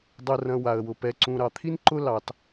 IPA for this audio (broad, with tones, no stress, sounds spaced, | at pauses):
dˤ ʊ˨ r ɐ̃˨ w a˨ ə̯ w ʊ˨ p ɛ˨ ǀ ũ˨ ɾ ɑ˨ t̪ʰ i˦ n ǃ ʊ˦ l ɑ˦ t